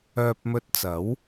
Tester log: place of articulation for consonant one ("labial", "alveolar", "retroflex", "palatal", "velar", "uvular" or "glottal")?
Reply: labial